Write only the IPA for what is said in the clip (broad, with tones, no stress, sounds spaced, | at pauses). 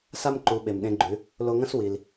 s a˥ m ǃ u˩˧ ɓ e˩ m ɗ ẽ˧ ɡ͡ǃ ʉ˩˧ | l o˧ ŋ ɐ̃˥ s w i˩ l